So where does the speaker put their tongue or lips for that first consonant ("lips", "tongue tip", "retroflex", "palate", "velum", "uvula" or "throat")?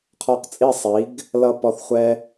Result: uvula